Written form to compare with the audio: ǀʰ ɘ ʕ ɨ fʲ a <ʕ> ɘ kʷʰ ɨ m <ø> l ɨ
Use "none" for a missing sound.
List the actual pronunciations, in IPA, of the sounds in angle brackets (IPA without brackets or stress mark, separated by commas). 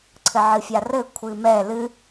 r, ɛ